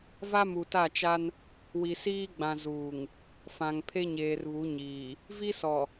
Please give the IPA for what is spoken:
v a˦ m u˨ t a˦˨ t͡ʃ a˦ n | w i˨ s iː˦ ɡ͡b ã˨ z uː˨ ŋ | f ã˨ ŋ pʰ e˦ ɲ eː˨ r β u˨˦ ɲ iː˨ | v i˦ s ɔ˨

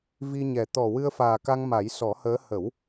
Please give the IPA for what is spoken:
v i˧ ɲ ɛ˨˩ t̪ ɔ˨˩ w ɨ˧ ə̯ f aː˨˩ k a˧ ŋ m a˨˩˦ j s ɔ˨˩˦ h əː˧˥ h ə˨˩˦ w

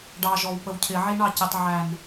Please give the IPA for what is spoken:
ɖ ɑ ʒ ɔ w p ə w cʰ ɪ ʕ i ɳ ɑ c ɪ tˤ ʕ æ n

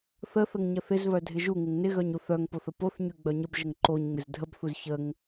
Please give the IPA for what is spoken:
θ ə θ ə ŋ ɲ ə θ ɪ z β œ dʱ ɪ ʒ u ŋ ɪ ŋ n ɪ ɣ œ ɲ u θ œ ŋ p o θ ə p o θ ɲ y ɡ͡b œ ɲ ə b ʒ ə ŋ ǃ o ɲ ŋ͡m ɪ z dʱ ə b θ u z ç ə ŋ

